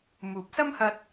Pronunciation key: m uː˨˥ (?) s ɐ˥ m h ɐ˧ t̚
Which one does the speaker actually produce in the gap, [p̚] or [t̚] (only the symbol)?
p̚